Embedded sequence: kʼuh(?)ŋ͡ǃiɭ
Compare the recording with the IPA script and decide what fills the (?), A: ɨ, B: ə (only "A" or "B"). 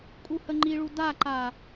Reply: B